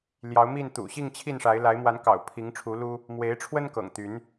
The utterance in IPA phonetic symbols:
ljɑ˨˦ʊ̯mi˥˨n t̪ṵ˨˩ɕi˥˨ŋ t͡ɕʰi˥˨nʂa˨˦ɪ̯ la˨˦ɪ̯mwa˨˦nkɑ̰˨˩ʊ̯ pʰi˨˦ŋʈ͡ʂʰu˨˦lu˦ | mwe˨˦ɪ̯ʈ͡ʂʰwə˦nkɤ̰˨˩ŋ t̪y˨˦n

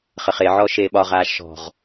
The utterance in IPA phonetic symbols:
χəχeʕɔ ʃeːɓɒʁaː ʃɔ̤ʁ

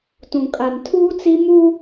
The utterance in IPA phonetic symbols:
tũ˨kʼa˨ntʰuː˦t͡si˦ mu˦

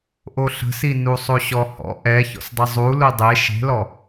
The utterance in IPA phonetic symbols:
ʔoɬə̤sinu sˤoɕɔhɔ̰ ʔɛ çɔ̰sdˤəzˤu ludˤe ʃe̤lɔ

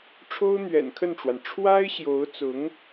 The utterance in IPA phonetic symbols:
ʈ͡ʂʰo˥ʊ̯n̪ɥɛ̰˨˩nkʰə˥˩nʈ͡ʂwa˩n ʈ͡ʂʰwa˥ɪ̯ɕjo˧˥ʊ̯t͡sʊ˧˥ŋ

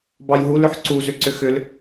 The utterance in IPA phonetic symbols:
bɑjɦulʏħ ǀuzʏ ǀʏxʏl

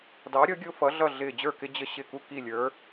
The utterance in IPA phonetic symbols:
dɑ˨˥ɾʲʌ˨˥ɡʲʊ˦ fʌ˨˥ɮʌ˥˨ ɮɪː˧˩d͡ʑə˞˥˨kɪ˦ d͡ʑə˦ ɕɪ˥˨ ku˥˨ki˥˨lʲə˞˨˥

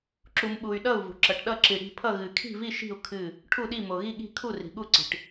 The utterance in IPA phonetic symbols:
ǁu˨mɓu˨y̯ ɗʌ˦˨u̯vṳ˨ǁʌ˨ʈɗʌ˦˨ ǁi˨ɽi̤˦˨pʰʌ˦˨ɣɨ˨ kʰi̤˦˨vi˦˨ʃi̤˦˨u̯ kʰɨ˦˨ | ʈʰu˦˨ɗi˦˨ mo˨ɣi˦˨ɠi̤˦˨ kʰu˦˨ri̤˨ɠu˦˨ǀi̤˨ʈ

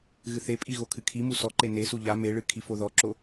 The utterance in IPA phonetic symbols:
ɣɨθepʼi ɣokʰɨkʰimu sɔǃe nesu ʎa meɭɨ kʰifoðɔǁo

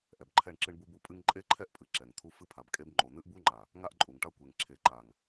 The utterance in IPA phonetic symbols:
ʔɛ˨bǃʰɛ˦˨ɳǁɨ˦ɳ bu˦bu˦pʼɨ˦ŋ ǃʼe˦ǃʰɛ˦ʔpʼɨ˨ ǁɛ˨ŋt̪ʰu˦ fɨ˦pʰa˨bkʼe˦b ŋ͡ǃo˨n̪ɨ˦ʔbu˦ŋ͡ǃa˨ | ŋa˦ʔǃʼu˨ŋʈa˦ kʷe˨ŋ ǁʰe˨ǃa˨ŋ

